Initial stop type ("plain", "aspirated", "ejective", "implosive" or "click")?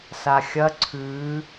click